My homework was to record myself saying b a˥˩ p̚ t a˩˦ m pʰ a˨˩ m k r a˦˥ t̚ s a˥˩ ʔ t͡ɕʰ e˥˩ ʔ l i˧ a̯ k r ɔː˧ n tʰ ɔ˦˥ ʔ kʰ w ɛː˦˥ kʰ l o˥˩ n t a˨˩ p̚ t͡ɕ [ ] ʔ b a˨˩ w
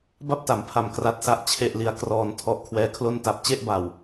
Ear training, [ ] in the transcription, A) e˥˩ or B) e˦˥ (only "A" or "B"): A